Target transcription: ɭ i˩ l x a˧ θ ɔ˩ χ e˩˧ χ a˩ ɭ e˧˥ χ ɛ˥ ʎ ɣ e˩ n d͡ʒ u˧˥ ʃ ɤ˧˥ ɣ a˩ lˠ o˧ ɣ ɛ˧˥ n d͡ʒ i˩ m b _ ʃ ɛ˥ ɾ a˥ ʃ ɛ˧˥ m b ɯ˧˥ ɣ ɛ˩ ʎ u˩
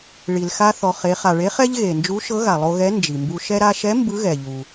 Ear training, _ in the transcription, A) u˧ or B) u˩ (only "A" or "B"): A